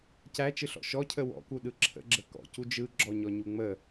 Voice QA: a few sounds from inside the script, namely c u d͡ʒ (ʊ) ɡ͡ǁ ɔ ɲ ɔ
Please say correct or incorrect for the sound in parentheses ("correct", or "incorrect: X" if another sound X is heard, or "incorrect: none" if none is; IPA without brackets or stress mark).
incorrect: ɯ